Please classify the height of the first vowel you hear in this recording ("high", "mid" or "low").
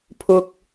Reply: high